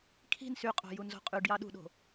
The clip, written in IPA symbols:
kʰi̤n syqʼo̤ junzo̤qʼyɖjɑ ɗṳɗo̤

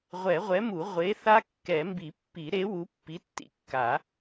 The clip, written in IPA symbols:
ʁʷɛ˨˩˦ʁʷɛ˨˥mu˨˩˦ ʁʷe˨˥θa˦˥ kːɛ˨˩˦mbi˨˩˦pːi˨˩˦ɾe˨˥ wu˨˥pːi˨˥tːḭ˨˥ kːa˨˩˦

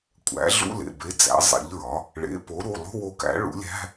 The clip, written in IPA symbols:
kʷʼæ̰˩˥ɮṵ˧˥˧lḛ˩˧˩ be˩˧˩ d͡zæ̰˩˥zˤḛ˩˥ʎɹɒ˩˥ | ɭḛ˩˥po˩˥ɾu˩˧˩ lˠṳ˧˥˧wo˧˩kæ̰˩˥ ɭṵ˩˥lʲæ̤˧˥˧

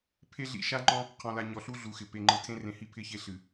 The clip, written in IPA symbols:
pʰe˦ɮḭ˦˨ ʃa˦ŋ͡ǃɔ̃˦ | qʰɔ̃˨la˨ɲɔ˨ɬu˦ ɮu˨xɪ˨ pe˨ŋ͡ǃɯ˨ tʰẽ˦rẽ˨hi˦ pʰɪ˦çe˦ɬɨ˨

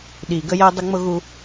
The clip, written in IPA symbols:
ɗi˨ ɡə˦jɛ˦ dˤə˦ŋ͡mʊ˦ɣu˦

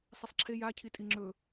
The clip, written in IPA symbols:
sˤisˤǁʰe ja cʰitʼiŋ͡ǁɵ

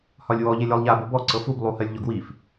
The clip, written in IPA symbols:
hɒlʲwɔ ʎelʲɔlˠʎa bobɔ ǀɤfub lˠuhɜlʲʎɔɡwif

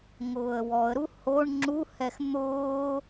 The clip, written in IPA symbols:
ŋʊːə̯wɔə̯ɾu hoɳ ŋ͡ǁuhɛx n̪ʊː

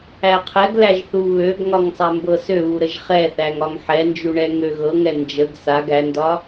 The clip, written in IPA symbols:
æqʰɛɡlæʒ θuβøɡŋɒŋ sˤambɤsøβu ɾəʒχɛθæŋ ɒŋħɛnd͡ʒu ɳɛŋøɣɤŋɛ nd͡ʒəɡ saɡ ændɒ

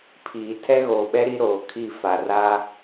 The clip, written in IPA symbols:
pʰiː˨ tʰɛ˦ɣoː˨ɓɛ˦ ɾi˦ɾoː˨kʰi˦˨ fa˨ra˦

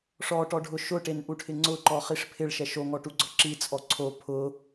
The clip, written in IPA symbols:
ʂɔʈɔɖʱʊ ʃʊʈenʔuʈʰɪ ŋ͡ǀʊǃɔχiʂ pʰɪɭʃɛ ʃoŋɔʈuɡ͡ǀɔ ǁit͡sʼɔ ǀʰo pʰʊ

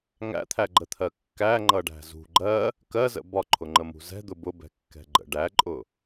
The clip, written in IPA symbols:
ŋæ̰t̪ʰæɡ͡ǃət̪ʰɜ kːæŋ͡ǃʌɖæ̤ zṳ ɡ͡ǃɜ | kɜzə̰ bɒǃʰʊŋ͡ǃəmṳ zɛ̤d̪ʊ bʊbɛ̤kːɛ̤ɡ͡ǃə̰ ɖæǃʼʊ

